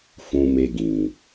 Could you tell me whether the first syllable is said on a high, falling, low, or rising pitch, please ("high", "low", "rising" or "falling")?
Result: low